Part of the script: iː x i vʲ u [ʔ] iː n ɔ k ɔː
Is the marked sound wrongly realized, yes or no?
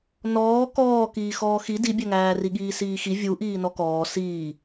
no